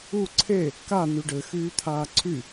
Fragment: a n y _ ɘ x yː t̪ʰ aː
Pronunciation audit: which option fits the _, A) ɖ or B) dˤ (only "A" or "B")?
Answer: A